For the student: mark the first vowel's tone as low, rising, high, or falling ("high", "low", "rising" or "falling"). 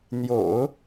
low